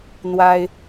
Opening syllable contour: high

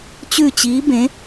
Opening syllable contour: falling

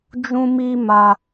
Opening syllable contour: high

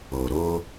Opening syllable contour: low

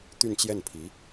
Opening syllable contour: falling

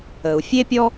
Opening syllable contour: low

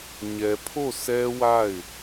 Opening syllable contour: low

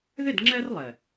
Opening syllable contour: falling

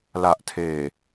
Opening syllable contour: low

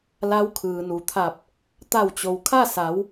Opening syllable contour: rising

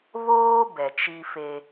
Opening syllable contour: high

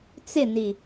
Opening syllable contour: falling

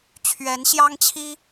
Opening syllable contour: rising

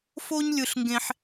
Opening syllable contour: high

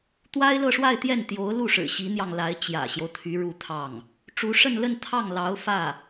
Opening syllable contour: high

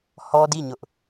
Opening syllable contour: high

